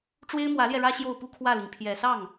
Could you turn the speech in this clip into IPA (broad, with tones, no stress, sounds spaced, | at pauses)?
ʈ͡ʂ w e˥ ɪ̯ m w ä˧˥ l j ɛ˧ ɻ ä˥ ɕ j o˥˧ ʊ̯ p u˥˧ kʰ w ä˥˩ l i˩ ŋ pʰ j ɛ˨˩ s ɑ˥˩ ŋ